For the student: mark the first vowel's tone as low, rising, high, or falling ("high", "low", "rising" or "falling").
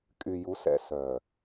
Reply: low